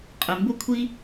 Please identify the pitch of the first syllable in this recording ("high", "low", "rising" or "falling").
low